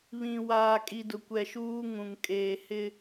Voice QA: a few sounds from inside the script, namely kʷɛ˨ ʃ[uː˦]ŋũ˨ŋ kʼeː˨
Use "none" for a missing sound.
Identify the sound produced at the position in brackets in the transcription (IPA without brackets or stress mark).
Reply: uː˦